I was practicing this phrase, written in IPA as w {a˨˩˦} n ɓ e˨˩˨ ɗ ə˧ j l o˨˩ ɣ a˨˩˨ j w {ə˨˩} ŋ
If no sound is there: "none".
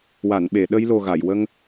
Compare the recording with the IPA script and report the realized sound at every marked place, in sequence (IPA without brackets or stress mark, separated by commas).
a˨˩˨, ə˧